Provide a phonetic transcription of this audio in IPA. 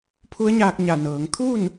pʰ u˧˥ ə̯ ɲ aː˧ k̚ ɲ a˧˩ n ɤː˩˧ ŋ t̪ʰ u˥˨ n

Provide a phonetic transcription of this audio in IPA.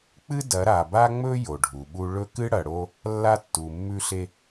k͡p ɨ˦ d ɐ˨˦ ɾ a˨ b a˦ ŋ͡m ɵ˦ j o˨ ɖʱ u˨ ɓ u˦ ɭ ɵ˦ k ɨ˦ ɽ ɐ˨ ɽ o˦ | lː a˦ tː u˨ mː ʉ˦ ɬ e˦

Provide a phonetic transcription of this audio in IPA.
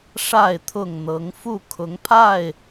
ʂ a˥˨ ɪ̯ t̪ʰ ʊ˥˨ ŋ n̪ ɤ˨˦ ŋ f u˥˨ kʰ ʊ˨˦ ŋ pʰ a˥˨ ɪ̯

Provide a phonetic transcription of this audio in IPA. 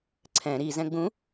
ǀʰ ɛ̃ ɾ i z ɛ̃ ɡ͡b ũ

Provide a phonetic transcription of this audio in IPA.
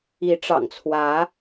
i˨˦ ʈ͡ʂ ɑ̰˨˩ ŋ t͡sʰ w ä˨˦

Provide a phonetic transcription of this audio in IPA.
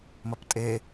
m ɐ p tʼ e

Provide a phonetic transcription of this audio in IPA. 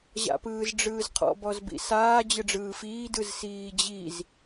ʑ a̰ p ɯː z ɖ͡ʐ ɯː z qʰ ɔ̰ b ɔ z b ḭ s aː d͡ʑ ɯ ɖ͡ʐ ɯː f iː d ɯ z s iː d͡ʑ i z

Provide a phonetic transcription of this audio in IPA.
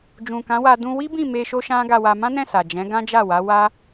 d͡ʒ ũ˨ k ã˨˦ w a˧ d ũ˧ w i˦ b ĩ˦˨ m e˧ ʃ o˦ ʃ ã˦ ɡ a˧ w a˧ m ã˦ n ɛ̃˦˨ s a˨ d͡ʒ ɛ̃˨˦ ɡ ã˦ d͡ʒ a˦˨ w a˨˦ w a˦

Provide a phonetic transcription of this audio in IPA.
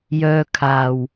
j œː˧ kʰ aː˨ w

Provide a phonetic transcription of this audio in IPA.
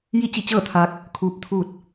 j i˥˨ t͡ɕ i˥˨ t͡ɕ ɤː˥˨ t̪ʰ aː˧ k̚ | kʰ uː˧˥ p̚ t̪ʰ uː˥˨ t̚

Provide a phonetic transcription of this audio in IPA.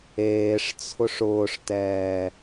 eː ʂ t͡sʰ ʊ ʂ ʊː ʂ t ɛː

